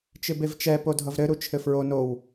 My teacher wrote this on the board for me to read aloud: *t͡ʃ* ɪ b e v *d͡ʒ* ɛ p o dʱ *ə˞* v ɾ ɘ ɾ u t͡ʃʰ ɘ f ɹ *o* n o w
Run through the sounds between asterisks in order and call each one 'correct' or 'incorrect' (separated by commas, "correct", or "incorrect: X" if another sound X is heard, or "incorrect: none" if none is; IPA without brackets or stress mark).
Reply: correct, incorrect: t͡ʃ, incorrect: ʌ, correct